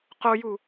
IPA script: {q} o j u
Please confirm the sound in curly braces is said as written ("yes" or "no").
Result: yes